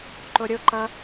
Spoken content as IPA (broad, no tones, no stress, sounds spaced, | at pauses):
ǃ o ɾʲ o ǃ ʌ